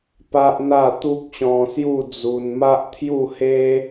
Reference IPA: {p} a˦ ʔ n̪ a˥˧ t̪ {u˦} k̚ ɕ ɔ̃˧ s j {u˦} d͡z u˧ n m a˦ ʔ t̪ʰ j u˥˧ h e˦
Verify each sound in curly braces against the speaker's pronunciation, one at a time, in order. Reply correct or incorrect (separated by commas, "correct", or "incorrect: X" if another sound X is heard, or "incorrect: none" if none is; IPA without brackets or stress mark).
correct, correct, incorrect: u˥˧